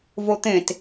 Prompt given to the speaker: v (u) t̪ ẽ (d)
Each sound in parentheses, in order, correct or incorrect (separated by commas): incorrect, incorrect